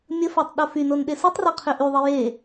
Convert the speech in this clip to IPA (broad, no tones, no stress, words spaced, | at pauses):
mʲəfatˤ ɗofynon ɗesutˤrɛ qʰøʔyðˤe je